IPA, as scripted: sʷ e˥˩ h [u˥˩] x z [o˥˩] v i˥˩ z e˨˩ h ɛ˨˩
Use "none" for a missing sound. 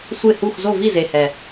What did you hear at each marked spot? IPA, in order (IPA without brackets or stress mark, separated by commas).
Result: u˥˩, o˥˩